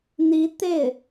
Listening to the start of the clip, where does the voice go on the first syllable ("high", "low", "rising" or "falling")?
rising